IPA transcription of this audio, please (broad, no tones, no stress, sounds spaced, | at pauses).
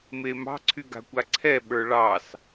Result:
m e m ɑ̤ ǀʰ y ɡ a̤ kʷ a ǀʰ ɛ ɓ ə˞ ɭ ɑ s